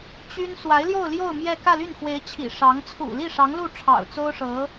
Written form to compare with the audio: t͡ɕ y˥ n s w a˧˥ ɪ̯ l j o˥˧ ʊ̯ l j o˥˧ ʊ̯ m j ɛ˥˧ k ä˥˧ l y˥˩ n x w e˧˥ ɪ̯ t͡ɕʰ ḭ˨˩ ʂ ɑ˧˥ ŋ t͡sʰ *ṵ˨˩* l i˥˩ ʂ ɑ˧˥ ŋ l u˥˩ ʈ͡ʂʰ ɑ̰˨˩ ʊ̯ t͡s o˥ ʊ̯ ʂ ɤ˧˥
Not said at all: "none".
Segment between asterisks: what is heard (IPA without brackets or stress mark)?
ṵ˨˩